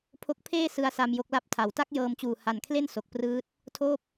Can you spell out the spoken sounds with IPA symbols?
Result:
pʰo˦˥k̚ pʰeː˥˩ sɯ˧a̯sa˧m jo˦˥k̚la˦˥p̚tʰa˩˦w ta˥˩k̚jɤː˧mt͡ɕuː˨˩ ha˨˩nkʰle˥˩n so˨˩k̚prɯː˦˥t̚ | tʰoː˥˩p̚

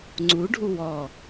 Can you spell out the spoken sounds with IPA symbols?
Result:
ŋ͡ǀuɖʱu wɔ

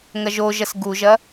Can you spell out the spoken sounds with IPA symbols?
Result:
ŋɐʒoʒɐs ɡuʒɐ

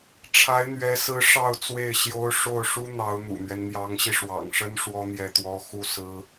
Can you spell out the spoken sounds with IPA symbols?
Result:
ʈ͡ʂʰa˧˥ɪ̯n̪ɥɛ˧˥sɹ̩˧˥ ʂɑ˥˧ʊ̯ t͡swe˥˩ɪ̯ ɕjo˥ʊ̯ ʂo˥˩ʊ̯ʂu˥ n̪ɑ˧˥ʊ̯n̪ṵ˨˩n̪ɥɛ˦n n̪jɑ˧˥ŋɕi˧ʂwɑ̰˨˩ŋʂə˥n ʂwɔ˥n̪jɛ˥˩t̪wɔ˥ xu˥sɹ̩˥

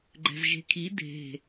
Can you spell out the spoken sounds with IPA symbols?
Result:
ɡ͡ǃɛ̤zʒe̤kʰi dʱe̤

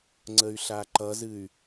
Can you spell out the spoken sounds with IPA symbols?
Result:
ŋ͡ǀəy̯ɬaǃʌzɨy̯

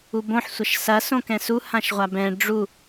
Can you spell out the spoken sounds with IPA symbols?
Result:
ubõħ sʷɐʃsɐ sõkɛ̃su hãʃʁʷabɛ̃ ɖ͡ʐu

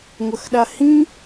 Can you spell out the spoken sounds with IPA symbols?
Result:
ŋʷɐxɗahĩ

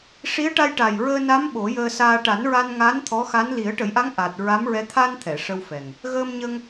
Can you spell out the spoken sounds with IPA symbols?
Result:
ʂi˧˥ə̯ʈa˧jʈa˨˩j ɹəː˧ na˧˥m ɓo˨˩˦jəː˧saː˧ ʈa˨˩˦nɹa˧nŋa˧˥n t̪ʰɔ˧˥xa˧˥n li˨˩˦ə̯ʈə˨˩˦jʔa˧˥ŋ ʔa˨˩t̚ ɹa˧˥mɹɛ˧˥ t̪ʰa˧n t̪ʰɛ˨˩˨ʂə˧wfɛ˨˩ŋ | ɣəː˧mɲə˧ŋ

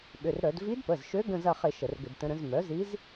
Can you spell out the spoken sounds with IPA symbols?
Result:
ɓʏ˩˧˩rɾœ˧˩˧d vi˧˥dpə˩˧˩zʃø˧˥ ɡə̃˦˨zɐ˦˨χɪ˧˩˧ ʃə˧˩˧rɡʏ˧˩˧dtə̃˧˥ɾə̃˩˥z mœ˩˥zi˧˥z

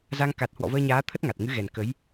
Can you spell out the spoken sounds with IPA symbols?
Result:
za˧ŋ ka˨˩t̚hwɔ̰˧˨ vəː˧ɲaː˨˦ t̪ʰə˦˥t̚ŋa˨˩t̚ ŋɨ˨˦ɣɛ˨˩n kə˨˦j

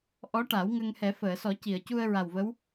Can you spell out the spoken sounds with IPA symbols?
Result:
ʔɔ˧˥ʈa˨˩˦w ŋə˧ŋhɛ˨˩˦ fəː˨˩˨sɔ˨˩˦ci˨˩˨ə̯ cu˧ə̯ɹa˨˩wvə˧˥w

